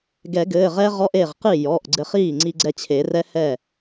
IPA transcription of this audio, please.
ɡɛ˨˩˦ɡɘː˩˧˩ʁɛ˦˥ʁɔ˧˥˧ʔ e˥˩ʁqi˥˩ jɔ˩˧˩ʔɡ͡ǀɘ˧χiː˥˩ ŋ͡ǀi˧ɡ͡ǀɛ˧t͡ɕʰe˨˩˦ rɛ˦˥hɛ˥˩

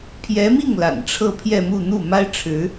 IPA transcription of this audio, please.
pʰjɛ˧˥mi˥˩ŋ la̰˨˩nʈ͡ʂʰɤ˥˧pʰjɛ˥˧mu˥˧ n̪u˥˩ma˥ɪ̯ʈ͡ʂʰɻ̩˧˥

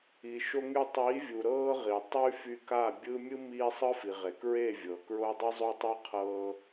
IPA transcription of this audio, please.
i˨ʃo˧ŋy˧ tˤiː˨˦vʲu˨ ɾɤː˦ʁi˨ tˤy˦fy˧ka˦˨bʲɯ˦ mʲɯ˦miː˧ sˤɯ˦fi˨ʁe˨kɹe˦˨ vʲɤ˨kɹo˦ dˤɯ˦zˤo˦tˤɤ˦ qʰɤː˧

